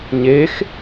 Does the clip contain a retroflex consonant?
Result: no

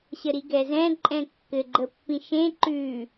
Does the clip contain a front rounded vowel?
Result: no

